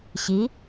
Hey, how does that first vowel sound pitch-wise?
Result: rising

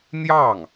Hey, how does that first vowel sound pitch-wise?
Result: falling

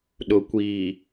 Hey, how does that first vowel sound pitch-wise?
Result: low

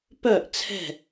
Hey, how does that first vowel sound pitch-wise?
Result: falling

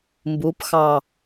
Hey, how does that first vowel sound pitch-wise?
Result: rising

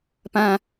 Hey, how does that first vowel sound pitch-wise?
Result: high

